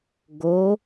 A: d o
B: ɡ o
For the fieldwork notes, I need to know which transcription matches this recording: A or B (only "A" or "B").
B